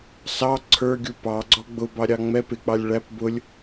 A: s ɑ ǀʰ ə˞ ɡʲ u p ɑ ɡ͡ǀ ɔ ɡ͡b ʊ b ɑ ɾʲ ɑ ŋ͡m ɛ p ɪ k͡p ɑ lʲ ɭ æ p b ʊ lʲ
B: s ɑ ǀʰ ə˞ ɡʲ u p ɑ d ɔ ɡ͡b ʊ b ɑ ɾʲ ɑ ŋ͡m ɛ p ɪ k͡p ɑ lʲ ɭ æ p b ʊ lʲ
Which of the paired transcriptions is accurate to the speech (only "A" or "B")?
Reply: A